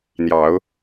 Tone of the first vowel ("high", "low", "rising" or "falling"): rising